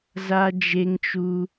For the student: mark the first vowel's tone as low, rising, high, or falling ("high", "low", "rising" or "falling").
high